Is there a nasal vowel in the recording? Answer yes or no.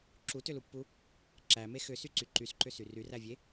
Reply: no